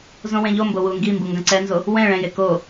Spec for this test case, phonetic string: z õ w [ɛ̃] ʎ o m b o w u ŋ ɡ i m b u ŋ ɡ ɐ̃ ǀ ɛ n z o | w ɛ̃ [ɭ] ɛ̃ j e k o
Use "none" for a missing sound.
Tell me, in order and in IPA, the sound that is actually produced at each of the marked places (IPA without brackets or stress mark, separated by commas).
ẽ, ɭ